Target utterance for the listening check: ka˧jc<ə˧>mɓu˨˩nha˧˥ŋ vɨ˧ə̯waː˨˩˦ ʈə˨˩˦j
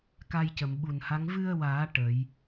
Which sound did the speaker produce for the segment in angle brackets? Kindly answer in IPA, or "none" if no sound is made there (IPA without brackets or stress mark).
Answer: ə˨˩˨